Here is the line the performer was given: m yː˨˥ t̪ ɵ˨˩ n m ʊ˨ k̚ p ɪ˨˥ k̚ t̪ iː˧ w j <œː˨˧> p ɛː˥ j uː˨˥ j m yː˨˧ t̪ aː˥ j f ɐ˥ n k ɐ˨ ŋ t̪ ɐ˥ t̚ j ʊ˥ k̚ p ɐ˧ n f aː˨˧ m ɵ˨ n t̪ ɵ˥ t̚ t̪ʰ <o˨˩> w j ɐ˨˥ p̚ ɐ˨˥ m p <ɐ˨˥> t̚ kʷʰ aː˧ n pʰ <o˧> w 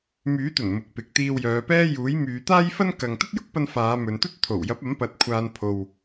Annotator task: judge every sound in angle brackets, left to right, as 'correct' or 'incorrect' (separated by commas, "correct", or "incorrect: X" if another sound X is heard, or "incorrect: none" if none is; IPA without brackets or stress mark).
correct, correct, correct, correct